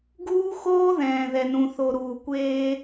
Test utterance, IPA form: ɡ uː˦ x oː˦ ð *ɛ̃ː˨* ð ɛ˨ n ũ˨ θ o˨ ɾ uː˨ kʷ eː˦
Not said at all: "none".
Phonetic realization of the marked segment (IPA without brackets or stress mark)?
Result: ɛ̃ː˨